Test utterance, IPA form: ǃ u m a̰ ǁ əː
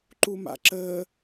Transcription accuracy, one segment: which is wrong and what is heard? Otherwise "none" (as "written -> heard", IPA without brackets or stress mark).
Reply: none